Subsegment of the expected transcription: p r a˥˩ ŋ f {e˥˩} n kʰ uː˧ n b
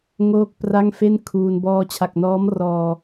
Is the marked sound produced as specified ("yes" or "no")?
yes